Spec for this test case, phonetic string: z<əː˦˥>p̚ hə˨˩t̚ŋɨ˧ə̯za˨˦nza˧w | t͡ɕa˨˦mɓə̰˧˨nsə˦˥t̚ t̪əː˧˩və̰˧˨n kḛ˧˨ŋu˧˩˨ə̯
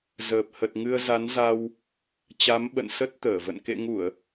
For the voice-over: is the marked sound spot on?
no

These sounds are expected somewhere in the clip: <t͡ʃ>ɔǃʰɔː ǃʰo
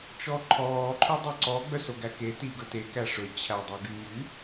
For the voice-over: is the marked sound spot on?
yes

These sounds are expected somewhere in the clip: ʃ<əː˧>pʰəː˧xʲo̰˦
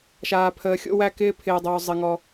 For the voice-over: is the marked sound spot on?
no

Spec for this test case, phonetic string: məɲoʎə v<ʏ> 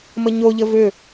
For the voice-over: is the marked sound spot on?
yes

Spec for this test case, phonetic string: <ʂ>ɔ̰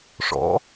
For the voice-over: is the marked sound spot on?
yes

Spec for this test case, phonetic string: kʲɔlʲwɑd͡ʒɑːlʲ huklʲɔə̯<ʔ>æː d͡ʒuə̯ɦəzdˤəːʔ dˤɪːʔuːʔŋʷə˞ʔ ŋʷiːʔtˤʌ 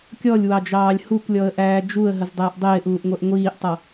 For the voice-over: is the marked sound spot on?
yes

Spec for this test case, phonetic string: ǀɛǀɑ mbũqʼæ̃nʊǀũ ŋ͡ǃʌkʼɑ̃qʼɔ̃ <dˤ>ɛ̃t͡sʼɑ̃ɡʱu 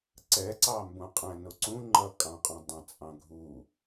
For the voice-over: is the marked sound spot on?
yes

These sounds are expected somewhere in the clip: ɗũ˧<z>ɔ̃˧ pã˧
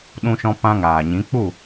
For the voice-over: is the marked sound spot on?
no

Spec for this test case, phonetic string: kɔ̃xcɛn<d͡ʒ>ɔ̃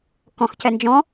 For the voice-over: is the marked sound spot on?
yes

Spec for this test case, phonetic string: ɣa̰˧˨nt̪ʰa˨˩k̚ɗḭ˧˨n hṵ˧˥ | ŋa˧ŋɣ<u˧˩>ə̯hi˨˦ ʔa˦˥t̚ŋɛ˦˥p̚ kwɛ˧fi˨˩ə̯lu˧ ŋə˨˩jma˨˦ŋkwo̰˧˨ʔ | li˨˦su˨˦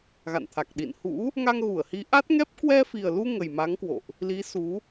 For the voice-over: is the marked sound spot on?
yes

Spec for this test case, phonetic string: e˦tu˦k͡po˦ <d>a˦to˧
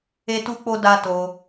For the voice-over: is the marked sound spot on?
yes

